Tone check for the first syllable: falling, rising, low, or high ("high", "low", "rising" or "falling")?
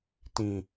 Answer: low